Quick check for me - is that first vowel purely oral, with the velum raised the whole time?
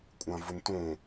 no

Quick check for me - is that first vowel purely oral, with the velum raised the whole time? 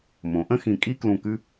no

